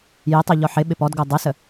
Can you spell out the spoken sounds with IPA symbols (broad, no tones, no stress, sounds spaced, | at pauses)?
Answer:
j ɪ tˤ o ʎ ɔ ħ ɪ ɓ ɪ p ɔ d ɡ o dˤ ɪ s ə